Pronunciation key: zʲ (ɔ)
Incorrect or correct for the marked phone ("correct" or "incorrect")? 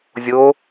incorrect